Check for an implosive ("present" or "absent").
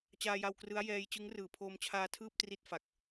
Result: absent